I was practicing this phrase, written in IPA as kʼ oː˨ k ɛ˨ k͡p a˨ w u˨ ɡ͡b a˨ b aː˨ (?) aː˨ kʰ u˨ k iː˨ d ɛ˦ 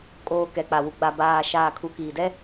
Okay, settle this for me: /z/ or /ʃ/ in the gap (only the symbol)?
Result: ʃ